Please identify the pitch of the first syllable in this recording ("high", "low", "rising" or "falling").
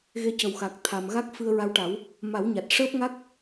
rising